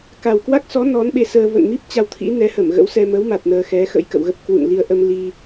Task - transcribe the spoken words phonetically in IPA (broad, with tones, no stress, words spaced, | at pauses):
ka˨˩wkwa˦˥k̚sɔ˨˦ nɔ˨˦nɓe˧səː˧ və̰˧˨nmi˦˥p̚ t͡ɕa˧wt̪ʰḭ˧˥nɛ˨˦hə˧˩m ɣə̰˧˥wsɛ˧ mə˨˦wma˨˩t̚ nəː˧xɛ˨˦xə̰˧˥j kə̰˧˨wɣə˦˥p̚ kwṵ˧˨nli˧ə̯ʔə˧m li˧